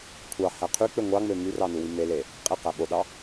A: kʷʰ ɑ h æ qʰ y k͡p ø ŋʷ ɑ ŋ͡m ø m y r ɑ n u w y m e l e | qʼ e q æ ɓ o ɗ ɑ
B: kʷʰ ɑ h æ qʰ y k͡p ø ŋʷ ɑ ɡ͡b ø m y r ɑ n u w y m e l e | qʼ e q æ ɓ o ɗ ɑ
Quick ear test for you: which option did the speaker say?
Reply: A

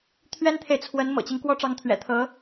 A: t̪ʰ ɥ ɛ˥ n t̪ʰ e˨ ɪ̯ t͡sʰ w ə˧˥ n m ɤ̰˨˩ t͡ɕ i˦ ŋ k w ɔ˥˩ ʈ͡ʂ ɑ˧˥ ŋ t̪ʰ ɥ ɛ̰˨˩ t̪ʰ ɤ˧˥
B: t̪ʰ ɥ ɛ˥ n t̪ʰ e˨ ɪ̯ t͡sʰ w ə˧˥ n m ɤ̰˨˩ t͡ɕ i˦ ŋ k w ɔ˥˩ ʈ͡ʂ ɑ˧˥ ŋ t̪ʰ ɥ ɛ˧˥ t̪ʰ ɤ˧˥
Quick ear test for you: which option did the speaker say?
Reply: A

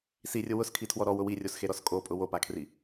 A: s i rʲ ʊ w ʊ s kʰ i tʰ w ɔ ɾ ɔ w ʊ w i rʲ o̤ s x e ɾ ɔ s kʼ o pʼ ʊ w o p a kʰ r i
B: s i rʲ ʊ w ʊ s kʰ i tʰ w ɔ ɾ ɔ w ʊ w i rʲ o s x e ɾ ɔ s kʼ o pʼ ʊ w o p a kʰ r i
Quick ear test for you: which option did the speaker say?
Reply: B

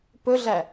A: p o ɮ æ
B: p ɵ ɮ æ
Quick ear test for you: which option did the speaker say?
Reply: B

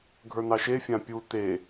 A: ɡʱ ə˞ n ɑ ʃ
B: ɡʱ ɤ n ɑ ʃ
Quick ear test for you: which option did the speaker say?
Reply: A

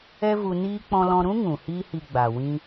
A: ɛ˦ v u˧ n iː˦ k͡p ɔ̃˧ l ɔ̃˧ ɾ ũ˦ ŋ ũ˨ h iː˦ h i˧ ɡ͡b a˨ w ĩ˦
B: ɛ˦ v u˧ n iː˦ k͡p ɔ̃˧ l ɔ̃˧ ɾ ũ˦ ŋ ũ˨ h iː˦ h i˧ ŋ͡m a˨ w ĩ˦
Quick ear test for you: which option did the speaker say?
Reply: A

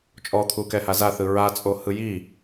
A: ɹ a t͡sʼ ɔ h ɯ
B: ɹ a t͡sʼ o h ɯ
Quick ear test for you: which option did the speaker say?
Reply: B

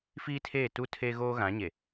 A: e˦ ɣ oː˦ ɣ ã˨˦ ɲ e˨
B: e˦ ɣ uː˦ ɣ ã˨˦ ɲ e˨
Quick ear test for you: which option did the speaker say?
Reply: A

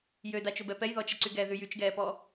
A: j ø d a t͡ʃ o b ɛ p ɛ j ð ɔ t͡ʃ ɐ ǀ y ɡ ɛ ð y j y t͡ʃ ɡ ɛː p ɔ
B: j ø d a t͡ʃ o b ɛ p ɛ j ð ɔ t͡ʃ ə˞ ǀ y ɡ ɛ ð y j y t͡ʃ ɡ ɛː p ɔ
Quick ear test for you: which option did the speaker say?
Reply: A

